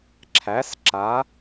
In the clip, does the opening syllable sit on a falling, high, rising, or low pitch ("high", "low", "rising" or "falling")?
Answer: rising